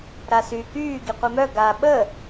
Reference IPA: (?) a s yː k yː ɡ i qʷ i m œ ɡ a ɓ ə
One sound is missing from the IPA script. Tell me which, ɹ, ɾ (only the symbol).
ɾ